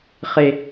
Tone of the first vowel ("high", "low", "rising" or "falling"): high